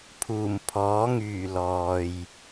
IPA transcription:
pʰ uː˨˩ m pʰ ɔː˨˥ ŋ yː˨˩ l ɔː˨ j

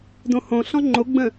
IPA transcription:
d õ h õ ɬ ɔ̃ ŋ͡ǃ o ɡ͡b ə̃

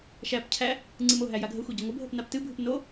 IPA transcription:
ʃ æ p cʰ æ | ŋ͡ǀ ɨ m o ɦ æ j a ɡʱ ə xʷ e ɟ ə ŋʷ ə bʱ ə p n a p t ɨ bʱ ɨ p n o

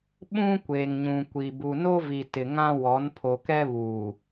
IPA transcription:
ɓ ũ˦ kʷ eː˨ ŋ ɲ ũ˨ kʷ i˨ b u˨ n o˦ v i˨ t ɪ˨ ŋ ã˦ w ɔ˨˦ n pʰ o˨ k ɛ˦ β uː˨

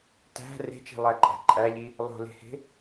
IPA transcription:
t æ̤ r e̤ t͡ʃ i̤ lˠ æ ǃʼ æ̤ ǃʼ æ ʎ i | lˠ o̤ l e̤ h e̤

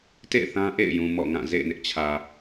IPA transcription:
t ḛ˦˨ ɪ̯ θ ã˦ ʔ ḛ˦˨ ɪ̯ j ũ˨ m ɔ̰˦˨ ŋ ã˦˨ z ḛ˦˨ ɪ̯ n ɪ˦ ʔ t͡ɕʰ ä˨

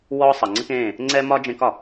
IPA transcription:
w ɔː˦ sˤ ʌ˨ ŋ͡ǀ ɘ˦ k ẽː˦˨ | ŋ͡ǀ ɛ˦ m ɒ˦ d͡ʒ ẽ˦ k ɒ˨

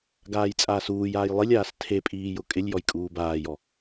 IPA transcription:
ɡ aː j t͡sʼ aː s uː j aː j lˠ i lʲ aː s tʰ e pʼ iː j ʊ kʼ ɪ lʲ j ɔ j kʼ uː b aː j ɔ

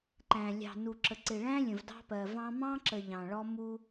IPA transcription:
ǃ æ̃˨ lʲ ɑ̤˨ n u˨ ǁ ə˨ ǀ ɪ˨ ɭ æ̃˦ lʲ ə̃˨ v d ɑ̤˦ p ɜ˨ v ɑ̃˦ m ɑ̃˦ ǁ ə˨ ʎ ɑ̃˨ ɭ ɔ˦ m u˦

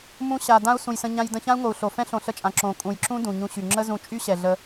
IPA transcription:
m ũ˧ ɕ a˨ d ã˦ u̯ s ũ˨ j s ə̃˧ ɲ ã˧ j d ə̃˧ ç ã˦ u̯ ŋ o˨ u̯ ɬ o˨ f ɛ̃˦ ɬ õ˨ ɬ ə˦˨ t͡ʃʼ ã˨ ǁ õ˨ kʼ ũ˨ j ǁ ũ˦ d ũ˨ ɲ ũ˧ ɕ y˨ ŋ͡ǁ ə˦ z ũ˧ t͡ʃʼ y˦ ɕ ɛ˨ ɮ ə˧

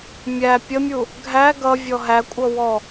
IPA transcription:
mʲ æ pʲ ə mʲ u | ɡʱ æ ɡ ʌ vʲ ɔ ɦ æ kʷʼ ʌ w ɔ

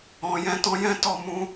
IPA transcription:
ɔ̃˨ j ɛ̃˨˦ t ɔ̃˧ j ɛ̃˦ t ɔ˦˨ m ũ˧

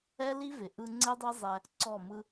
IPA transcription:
ɛ˦ l i˦ v ɪ˨ ʔ ɯ˧ ŋ͡ǀ e˦ dˤ e˦ zˤ ɛ˧ | ǀ ɔ˦˨ m ɯ˦

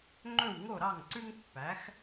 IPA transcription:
ŋ͡ǃ ɵ˥˩ w ŋ o˥˩ ɾ ɑ˥˩ ŋ ǀ ʉ˥ ŋ pː æ˩˥ x

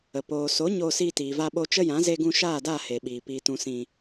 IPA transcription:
ə˨ p oː˨ s o˨˦ ɲ oː˧ s iː˧ t iː˨ v a˧ ɓ o˧ t͡ʃ ə˦ j ã˨˦ z e˧ ɡ ũ˧ ʃ aː˦˨ d a˦˨ h e˨ ɓ iː˨ p iː˨ t ũ˨ s ĩ˨

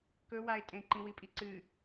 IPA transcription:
k ɵ w a ɪ̯ tʼ ẽ ǃ ĩ w i pʼ i ǀ ɨ

